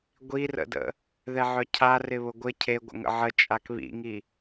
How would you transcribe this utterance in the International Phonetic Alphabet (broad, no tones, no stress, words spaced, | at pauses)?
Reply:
ɡʷirə̰də̰ | ðɛʕœcʰa rɪβʊɡʷɪ cʰeɡʷə̰ŋə̰ ʕət͡ʃʼak βḭŋi